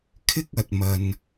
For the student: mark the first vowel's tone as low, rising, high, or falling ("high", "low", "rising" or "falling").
high